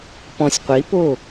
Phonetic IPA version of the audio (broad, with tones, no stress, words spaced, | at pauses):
pɔ̃˧sʲqʷi˨˦po˦˨